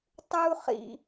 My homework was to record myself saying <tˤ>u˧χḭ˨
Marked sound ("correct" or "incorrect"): correct